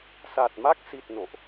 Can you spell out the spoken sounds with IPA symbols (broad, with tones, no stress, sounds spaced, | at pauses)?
s a˨˩ t̚ m a˦˥ k̚ s i˨˩ t̚ n o̰˧˨ ʔ